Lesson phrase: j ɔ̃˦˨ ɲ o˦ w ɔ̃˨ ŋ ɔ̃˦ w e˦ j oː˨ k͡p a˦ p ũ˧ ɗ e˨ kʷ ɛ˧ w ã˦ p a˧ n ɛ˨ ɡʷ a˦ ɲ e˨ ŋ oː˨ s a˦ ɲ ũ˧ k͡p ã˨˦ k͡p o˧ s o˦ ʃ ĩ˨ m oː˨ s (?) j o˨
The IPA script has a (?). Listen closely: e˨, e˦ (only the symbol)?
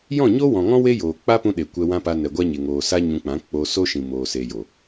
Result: e˨